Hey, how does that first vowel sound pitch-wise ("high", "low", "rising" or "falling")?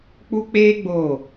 high